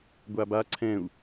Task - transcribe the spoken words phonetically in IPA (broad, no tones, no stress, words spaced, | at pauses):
ɡʷaba ǀʰɛ̃u̯